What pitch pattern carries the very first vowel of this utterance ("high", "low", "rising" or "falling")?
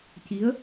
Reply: rising